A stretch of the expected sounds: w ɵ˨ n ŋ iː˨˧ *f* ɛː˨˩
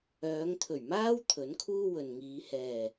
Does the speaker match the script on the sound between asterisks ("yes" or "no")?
no